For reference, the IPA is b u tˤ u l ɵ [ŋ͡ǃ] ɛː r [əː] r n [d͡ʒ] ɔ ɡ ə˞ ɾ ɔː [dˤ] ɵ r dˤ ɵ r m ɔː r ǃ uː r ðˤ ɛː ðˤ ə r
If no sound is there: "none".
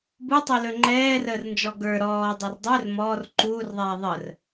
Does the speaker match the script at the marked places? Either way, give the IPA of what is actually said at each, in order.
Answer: ŋ͡ǃ, əː, d͡ʒ, dˤ

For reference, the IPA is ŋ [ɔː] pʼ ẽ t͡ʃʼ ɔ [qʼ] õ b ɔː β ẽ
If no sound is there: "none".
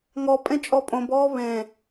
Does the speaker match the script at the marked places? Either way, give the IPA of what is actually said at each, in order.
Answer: ɔ, pʼ

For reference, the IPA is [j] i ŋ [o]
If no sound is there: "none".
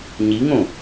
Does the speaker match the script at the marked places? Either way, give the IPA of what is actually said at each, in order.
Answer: ɲ, õ

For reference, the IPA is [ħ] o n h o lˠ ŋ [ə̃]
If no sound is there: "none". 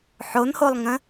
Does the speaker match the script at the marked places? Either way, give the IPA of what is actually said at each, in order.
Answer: ħ, ə̃

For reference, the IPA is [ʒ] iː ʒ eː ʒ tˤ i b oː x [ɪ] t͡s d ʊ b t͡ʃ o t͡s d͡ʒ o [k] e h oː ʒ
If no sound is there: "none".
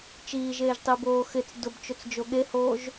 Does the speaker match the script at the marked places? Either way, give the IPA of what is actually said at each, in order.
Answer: t͡ʃ, ɪ, ɠ

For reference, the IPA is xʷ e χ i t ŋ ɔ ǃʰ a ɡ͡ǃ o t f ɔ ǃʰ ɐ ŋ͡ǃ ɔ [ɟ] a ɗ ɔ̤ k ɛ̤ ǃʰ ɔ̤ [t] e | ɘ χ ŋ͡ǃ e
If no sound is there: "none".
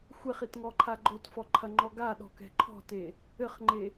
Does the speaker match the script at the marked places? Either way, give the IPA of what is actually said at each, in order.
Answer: ɡ, t

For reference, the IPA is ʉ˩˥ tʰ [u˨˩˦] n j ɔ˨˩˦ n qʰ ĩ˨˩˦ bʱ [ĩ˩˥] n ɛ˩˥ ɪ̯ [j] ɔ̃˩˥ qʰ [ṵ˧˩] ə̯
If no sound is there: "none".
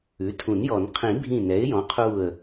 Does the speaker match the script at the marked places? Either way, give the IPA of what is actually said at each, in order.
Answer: ũ˨˩˦, ĩ˧˩, j, u˧˩

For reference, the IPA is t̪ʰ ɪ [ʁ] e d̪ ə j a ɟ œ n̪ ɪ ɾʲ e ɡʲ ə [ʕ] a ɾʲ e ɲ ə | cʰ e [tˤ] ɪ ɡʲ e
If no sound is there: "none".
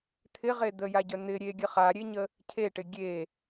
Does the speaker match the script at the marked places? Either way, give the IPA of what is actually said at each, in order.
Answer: ʁ, χ, ʈ

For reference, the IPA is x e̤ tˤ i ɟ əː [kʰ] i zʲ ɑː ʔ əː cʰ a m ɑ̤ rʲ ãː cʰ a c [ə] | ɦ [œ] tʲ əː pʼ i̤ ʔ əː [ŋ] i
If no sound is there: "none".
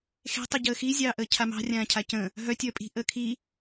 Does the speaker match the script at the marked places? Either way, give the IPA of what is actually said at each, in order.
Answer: x, ə̃, œ, kʰ

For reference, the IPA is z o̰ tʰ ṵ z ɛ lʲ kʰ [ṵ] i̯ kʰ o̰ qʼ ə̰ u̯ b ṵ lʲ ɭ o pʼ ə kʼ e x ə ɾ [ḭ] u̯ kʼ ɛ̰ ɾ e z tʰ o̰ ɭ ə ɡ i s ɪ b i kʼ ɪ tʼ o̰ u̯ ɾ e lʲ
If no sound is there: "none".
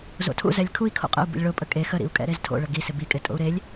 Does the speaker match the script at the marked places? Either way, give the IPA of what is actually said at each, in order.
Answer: u, ḭ

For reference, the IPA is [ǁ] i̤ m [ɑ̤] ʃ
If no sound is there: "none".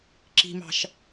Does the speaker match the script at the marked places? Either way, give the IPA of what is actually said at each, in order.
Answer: ǁ, ɑ̤

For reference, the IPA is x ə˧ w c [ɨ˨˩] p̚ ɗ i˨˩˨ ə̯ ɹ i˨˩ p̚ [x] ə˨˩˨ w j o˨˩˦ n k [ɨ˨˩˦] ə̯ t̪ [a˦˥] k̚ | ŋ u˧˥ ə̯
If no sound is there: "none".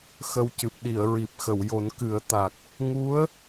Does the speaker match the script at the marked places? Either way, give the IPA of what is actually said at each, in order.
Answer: ɨ˨˩, x, ɨ˨˩˦, a˨˩

